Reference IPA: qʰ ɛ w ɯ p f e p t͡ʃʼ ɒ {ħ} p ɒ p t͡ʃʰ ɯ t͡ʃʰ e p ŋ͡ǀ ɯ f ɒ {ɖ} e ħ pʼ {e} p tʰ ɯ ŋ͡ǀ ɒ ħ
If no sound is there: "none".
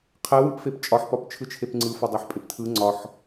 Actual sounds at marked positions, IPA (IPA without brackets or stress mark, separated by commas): ħ, dˤ, e